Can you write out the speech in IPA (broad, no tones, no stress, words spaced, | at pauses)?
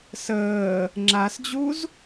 səː | ŋ͡ǁasd͡ʑuz